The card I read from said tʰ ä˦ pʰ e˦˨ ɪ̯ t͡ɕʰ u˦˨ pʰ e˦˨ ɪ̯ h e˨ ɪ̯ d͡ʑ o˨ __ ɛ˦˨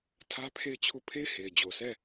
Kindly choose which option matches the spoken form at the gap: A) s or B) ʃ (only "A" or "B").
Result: A